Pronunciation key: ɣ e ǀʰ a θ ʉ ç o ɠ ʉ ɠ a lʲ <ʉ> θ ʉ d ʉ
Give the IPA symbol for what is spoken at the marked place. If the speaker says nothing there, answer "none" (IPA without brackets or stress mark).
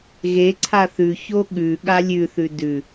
ʉ